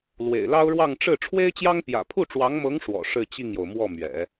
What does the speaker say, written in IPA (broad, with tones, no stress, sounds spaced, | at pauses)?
l w ḛ˨˩ ɪ̯ l ɑ˥ ʊ̯ ɻ w ɑ˥˧ ŋ ʈ͡ʂ ɻ̩˥˩ ʈ͡ʂʰ w e˥ ɪ̯ t͡ɕ j ɑ˥ ŋ p j ä̰˨˩ pʰ u˥˩ ʈ͡ʂ w ɑ˧˥ ŋ m ɤ˧˥ ŋ ʂ w ɔ̰˨˩ ʂ ɻ̩˥˧ t͡ɕ i˥˩ ŋ j o˩ ʊ̯ m w ɔ˥˩ m ɥ ɛ̰˨˩˦